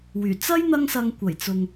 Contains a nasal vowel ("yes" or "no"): no